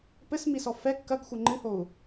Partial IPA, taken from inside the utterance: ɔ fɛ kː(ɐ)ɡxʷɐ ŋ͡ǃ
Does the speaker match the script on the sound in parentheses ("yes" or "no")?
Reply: yes